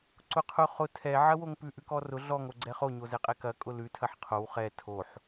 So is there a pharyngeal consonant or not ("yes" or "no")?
yes